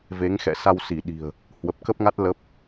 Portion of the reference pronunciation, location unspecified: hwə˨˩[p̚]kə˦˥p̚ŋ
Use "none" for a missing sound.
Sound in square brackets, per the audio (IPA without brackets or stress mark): p̚